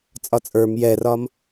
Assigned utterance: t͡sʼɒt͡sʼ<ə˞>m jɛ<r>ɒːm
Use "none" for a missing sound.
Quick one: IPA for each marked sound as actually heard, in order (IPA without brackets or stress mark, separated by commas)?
ə˞, r